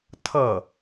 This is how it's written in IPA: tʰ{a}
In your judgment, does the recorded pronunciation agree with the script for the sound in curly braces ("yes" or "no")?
no